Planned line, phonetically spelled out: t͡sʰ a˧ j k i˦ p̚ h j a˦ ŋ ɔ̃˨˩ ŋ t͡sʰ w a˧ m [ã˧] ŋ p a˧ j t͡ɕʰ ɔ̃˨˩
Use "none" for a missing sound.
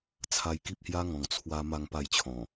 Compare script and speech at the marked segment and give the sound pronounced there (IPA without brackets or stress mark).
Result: a˧